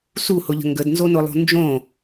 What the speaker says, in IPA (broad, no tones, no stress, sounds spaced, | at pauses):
s u h ʊ ʎ ə̤ ŋ ɡ ə d n z o n ʊ lˠ o̤ n d͡ʒ õ